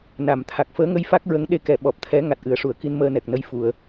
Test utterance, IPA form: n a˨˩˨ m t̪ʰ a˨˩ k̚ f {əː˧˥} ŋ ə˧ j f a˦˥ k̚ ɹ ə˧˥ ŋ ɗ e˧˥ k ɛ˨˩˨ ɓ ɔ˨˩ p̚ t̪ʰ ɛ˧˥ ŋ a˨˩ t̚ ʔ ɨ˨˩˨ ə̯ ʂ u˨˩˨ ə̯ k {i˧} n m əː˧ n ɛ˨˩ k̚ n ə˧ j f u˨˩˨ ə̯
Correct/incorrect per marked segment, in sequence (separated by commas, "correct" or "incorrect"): correct, correct